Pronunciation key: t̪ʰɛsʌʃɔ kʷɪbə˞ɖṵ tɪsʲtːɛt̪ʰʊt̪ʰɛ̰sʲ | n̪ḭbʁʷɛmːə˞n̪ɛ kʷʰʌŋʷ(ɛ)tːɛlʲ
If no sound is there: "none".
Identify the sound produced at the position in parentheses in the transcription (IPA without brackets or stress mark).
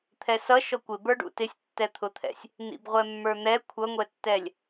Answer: ɛ